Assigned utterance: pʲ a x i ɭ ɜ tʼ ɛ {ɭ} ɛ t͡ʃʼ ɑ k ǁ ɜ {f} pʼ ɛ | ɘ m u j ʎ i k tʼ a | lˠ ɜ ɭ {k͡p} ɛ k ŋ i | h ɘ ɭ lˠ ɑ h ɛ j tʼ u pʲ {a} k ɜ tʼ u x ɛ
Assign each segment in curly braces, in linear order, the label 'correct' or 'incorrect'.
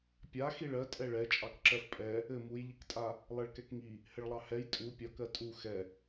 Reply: correct, correct, incorrect, incorrect

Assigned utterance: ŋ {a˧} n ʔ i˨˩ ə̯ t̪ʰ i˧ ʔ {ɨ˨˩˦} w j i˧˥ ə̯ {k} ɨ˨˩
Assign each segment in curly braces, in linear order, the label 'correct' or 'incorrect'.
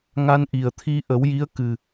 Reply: correct, incorrect, correct

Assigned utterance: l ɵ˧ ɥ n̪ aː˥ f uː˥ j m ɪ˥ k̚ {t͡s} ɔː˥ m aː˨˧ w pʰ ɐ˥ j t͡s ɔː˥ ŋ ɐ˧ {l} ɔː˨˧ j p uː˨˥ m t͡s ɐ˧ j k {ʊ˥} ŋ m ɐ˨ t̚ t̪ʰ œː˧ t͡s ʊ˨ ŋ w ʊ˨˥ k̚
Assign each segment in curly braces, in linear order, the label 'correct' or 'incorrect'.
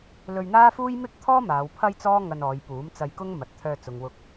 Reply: incorrect, incorrect, correct

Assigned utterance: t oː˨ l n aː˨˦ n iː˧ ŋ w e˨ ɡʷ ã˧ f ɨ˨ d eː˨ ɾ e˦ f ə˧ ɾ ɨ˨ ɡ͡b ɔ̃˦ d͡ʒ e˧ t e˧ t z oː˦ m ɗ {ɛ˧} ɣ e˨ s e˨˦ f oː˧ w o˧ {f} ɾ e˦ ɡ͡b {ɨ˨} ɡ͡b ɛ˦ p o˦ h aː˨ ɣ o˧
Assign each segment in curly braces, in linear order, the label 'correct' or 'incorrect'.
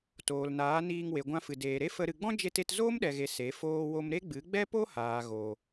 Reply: incorrect, incorrect, incorrect

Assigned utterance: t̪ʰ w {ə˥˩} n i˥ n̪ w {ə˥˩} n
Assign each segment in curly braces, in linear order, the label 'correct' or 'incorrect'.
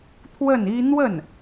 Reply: correct, correct

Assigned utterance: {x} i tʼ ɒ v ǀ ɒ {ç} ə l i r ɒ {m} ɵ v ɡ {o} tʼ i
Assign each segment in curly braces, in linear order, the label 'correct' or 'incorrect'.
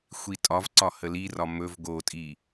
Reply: incorrect, incorrect, correct, correct

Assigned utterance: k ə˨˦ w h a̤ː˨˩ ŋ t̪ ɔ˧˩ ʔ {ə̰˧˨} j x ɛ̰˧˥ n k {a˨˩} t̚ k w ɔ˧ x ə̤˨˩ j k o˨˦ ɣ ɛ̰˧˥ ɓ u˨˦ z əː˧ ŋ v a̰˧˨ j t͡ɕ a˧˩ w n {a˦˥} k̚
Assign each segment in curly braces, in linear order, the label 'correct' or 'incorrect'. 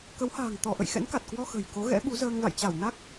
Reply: correct, correct, correct

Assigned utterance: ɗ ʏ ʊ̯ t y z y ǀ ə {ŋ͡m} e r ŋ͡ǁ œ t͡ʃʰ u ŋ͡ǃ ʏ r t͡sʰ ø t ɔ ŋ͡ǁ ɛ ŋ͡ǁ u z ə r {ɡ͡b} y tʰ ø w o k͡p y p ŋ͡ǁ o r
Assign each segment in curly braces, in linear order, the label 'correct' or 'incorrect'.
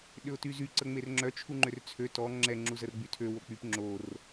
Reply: correct, correct

